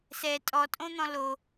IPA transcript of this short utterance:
s ɛ tʼ ɔ tʼ õ n̪ ɔ̃ l o

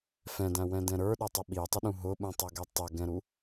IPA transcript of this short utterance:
f ɛ̃ d æ̃ w ɛ̃ d ɛ̃ ɾ ə˞ ɗ ɛ tˤ ə ɓ i tˤ ə ɗ ũ ɦ ʊ ɓ ũ tˤ ʌ ɡ ɛ tˤ ɛ ɡ ɛ̃ ɾ u

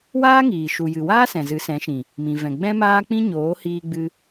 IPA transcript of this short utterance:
w aː˦ ŋ iː˨ ʃ u˨ j ɨ˨ w aː˦ s ɛ̃˨ z ɨ˨˦ s ɛ̃˨˦ ʃ ĩ˨ | m ĩ˨ v ɛ̃˨ ɡ͡b ɛ̃˦ m aː˦ k͡p ĩ˦ ɲ oː˨˦ h iː˧ ɡ͡b ɨ˧

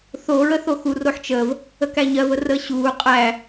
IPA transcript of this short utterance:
θ o ɹ ə θ o x u r o ħ t͡ʃ əː v | ə k æ ɲ ɜ v ə r əː ɕ uː qʼ æ

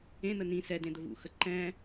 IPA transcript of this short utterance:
ẽ n̪ ə n ĩ s ɛ d ẽ d̪ ə v ṵ x ə ǃ ɛ̃

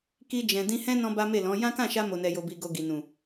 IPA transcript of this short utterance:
k i˧ d͡ʒ ɛ̃˨ d ĩ˧ h ɛ̃˦ n ɔ̃˦ b a˦ m e˦˨ l ɔ̃˨˦ j ã˦ k ã˦˨ ʃ a˧ m o˨ n ɛ˨ j o˨ b i˨ ɡ o˨ ɡ i˨ n ũ˨

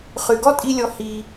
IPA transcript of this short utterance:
χ y˨ ɡ ɔ˦ tʼ i˧ lʲ ɔ˧ h i˧

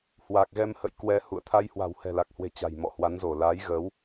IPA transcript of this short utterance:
h w a˨˩ k̚ ɣ ɛ˧ m h ə̰˧˨ j k w ɛ˧ h ṵ˧˨ ə̯ t̪ʰ a˧ j h w a̤˨˩ w h ɛ̤˨˩ l a˨˩ k̚ h w e̤˨˩ t͡ɕ a̤˨˩ j m ɔ̰˧˨ h w a˨˦ n z o˧˩ l a˨˦ j ɣ ə˨˦ w

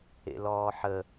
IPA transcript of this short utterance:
ḛ l ɔː ħ ə

